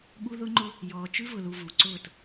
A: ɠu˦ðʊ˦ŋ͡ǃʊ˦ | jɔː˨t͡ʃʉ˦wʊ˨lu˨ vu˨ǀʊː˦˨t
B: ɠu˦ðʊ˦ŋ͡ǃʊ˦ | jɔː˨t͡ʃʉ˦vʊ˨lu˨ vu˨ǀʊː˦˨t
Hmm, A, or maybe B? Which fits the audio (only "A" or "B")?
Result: B